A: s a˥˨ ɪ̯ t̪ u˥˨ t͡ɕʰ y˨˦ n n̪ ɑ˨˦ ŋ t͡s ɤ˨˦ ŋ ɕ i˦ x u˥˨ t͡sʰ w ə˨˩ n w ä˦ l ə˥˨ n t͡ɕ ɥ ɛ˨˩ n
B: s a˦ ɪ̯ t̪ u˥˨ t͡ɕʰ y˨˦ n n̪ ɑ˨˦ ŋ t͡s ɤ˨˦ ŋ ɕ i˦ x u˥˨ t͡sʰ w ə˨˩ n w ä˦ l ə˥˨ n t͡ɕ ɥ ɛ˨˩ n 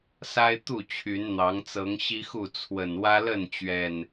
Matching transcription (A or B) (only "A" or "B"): B